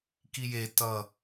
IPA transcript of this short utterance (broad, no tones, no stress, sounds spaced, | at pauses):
k i j e t ʌ